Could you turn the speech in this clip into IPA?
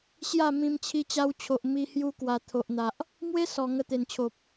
ɕ j a˥˧ m ĩ˧ m t͡ɕʰ i˧ t͡ɕ a˧ w t͡ɕʰ o˨ ʔ m i˧ h j u˧ k w a˨˩ t̪ʰ o˨ ʔ n̪ a˨ ʔ | m w e˦ s ɔ˨˩ ŋ ə˧ t̪ e˨˩ n t͡ɕʰ o˨ p̚

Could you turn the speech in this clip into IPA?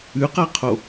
ʉ q a qʰ o

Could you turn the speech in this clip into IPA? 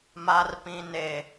m a˨ r p ĩ˨ n e˨

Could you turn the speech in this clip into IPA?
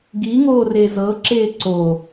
ɡ i ŋ oː r e z ɤ ǁ eː ǀ o

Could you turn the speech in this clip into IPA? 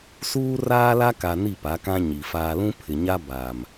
s uː˦ r aː˦ l a˦ k a˨ n i˦˨ p a˨˦ k ã˦ ɲ i˨ f aː˦ l ũ˦ pʰ ɪ˨ ɲ a˦ b a˨ m

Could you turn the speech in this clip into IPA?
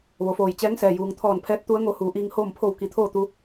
ʋ o˩˧ f oː˧˩ j t͡ɕ ɛː˧˥ ŋ s ɛː˩ j uː˩ ŋ t̪ʰ ɔː˧˩ n pʰ ɛː˧˥ t̚ t̪ u˧˥ ə̯ ŋ o˧ h uː˩˧ ʔ iː˧ ŋ h oː˥˨ m pʰ o˥˨ w k i˧˩ t̪ʰ oː˥˨ t̪ u˧

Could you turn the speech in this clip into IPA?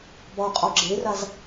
b ɒ qʼ ɒ ɡ͡ǁ e r a z

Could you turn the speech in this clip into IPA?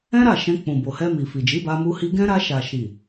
ɛ̃˦ ɾ a˦˨ ʃ ɛ̃˧ k͡p ũ˨ b o˨ h ɛ˧ m i˨ f i˨ d͡ʒ i˨˦ b a˧ m u˧ h i˧ ɡ ɛ̃˦ ɾ a˧ ʃ a˨ ʃ i˨

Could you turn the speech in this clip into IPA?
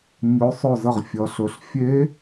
ɲ ɵ˩˧ sˤ ɵ˧˩ z ə˧˩ ʁ fʲ ʌ˩˧ ɬ ɵ˩˧ ɬ fʲ e˧˥

